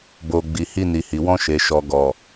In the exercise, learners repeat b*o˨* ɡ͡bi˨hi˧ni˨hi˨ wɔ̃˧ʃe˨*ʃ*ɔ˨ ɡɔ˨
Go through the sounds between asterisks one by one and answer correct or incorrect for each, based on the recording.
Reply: correct, correct

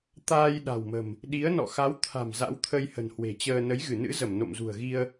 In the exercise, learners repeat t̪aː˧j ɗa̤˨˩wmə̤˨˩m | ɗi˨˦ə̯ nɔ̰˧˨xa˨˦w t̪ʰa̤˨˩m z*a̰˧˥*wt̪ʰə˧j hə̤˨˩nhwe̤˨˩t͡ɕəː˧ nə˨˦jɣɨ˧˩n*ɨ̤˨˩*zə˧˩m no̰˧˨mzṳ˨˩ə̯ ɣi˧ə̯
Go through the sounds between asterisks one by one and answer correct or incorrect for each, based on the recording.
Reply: correct, incorrect: ɨ̰˧˥

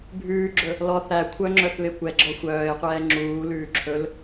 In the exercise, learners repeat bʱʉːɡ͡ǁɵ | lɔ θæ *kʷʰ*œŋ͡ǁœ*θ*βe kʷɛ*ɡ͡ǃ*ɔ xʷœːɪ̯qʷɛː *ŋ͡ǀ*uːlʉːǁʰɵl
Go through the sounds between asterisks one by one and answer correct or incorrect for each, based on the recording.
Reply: correct, correct, incorrect: ɡ͡ǁ, incorrect: ŋ͡ǁ

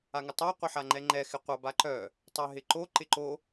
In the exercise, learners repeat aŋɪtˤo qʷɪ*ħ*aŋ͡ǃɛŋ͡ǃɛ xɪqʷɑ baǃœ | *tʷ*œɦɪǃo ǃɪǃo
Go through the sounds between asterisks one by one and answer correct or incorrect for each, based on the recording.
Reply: correct, incorrect: tˤ

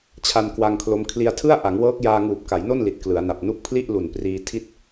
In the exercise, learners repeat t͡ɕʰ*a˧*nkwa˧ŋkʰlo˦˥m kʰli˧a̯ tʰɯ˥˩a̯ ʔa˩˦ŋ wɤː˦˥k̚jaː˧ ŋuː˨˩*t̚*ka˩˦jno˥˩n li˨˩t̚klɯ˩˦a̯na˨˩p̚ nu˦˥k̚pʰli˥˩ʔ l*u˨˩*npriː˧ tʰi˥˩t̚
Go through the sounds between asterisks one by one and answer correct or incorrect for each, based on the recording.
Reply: correct, incorrect: p̚, correct

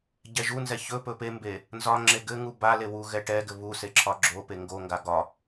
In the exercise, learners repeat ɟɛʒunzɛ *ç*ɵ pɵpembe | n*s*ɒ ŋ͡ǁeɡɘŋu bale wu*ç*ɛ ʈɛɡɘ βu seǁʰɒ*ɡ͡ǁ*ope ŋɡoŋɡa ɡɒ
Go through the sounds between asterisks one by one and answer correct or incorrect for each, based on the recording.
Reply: correct, incorrect: z, incorrect: ɣ, correct

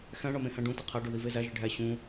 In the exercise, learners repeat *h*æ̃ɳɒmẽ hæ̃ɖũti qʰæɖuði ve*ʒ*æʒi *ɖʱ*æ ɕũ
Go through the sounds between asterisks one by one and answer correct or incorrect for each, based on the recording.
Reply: incorrect: x, incorrect: z, correct

